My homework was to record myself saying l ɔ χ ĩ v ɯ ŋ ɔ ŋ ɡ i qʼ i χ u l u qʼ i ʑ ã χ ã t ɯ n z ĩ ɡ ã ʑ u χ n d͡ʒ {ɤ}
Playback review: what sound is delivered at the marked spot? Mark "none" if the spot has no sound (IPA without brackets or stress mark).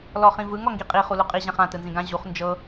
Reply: ɤ